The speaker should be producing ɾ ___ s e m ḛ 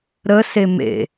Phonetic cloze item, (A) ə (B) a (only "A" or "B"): A